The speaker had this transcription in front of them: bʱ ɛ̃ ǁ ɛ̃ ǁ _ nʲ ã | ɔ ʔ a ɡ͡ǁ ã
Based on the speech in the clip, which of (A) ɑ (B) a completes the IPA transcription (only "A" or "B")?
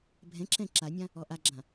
B